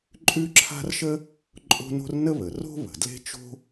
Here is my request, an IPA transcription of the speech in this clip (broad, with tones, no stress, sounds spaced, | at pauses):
ǃʼ ʉ˥ ǁʰ a̤˥ r ʃ ə˥ | ǃʼ o̤˥ n o̤˥ r n ə˥ β ə˩ r o̤˥ β ə̤˩ d l e̤˥ t͡ʃ o̤˥